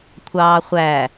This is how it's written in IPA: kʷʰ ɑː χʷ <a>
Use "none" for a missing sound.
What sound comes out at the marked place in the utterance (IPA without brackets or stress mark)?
æ